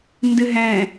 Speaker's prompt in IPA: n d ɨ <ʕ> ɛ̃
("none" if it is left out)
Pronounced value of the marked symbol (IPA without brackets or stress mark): ɦ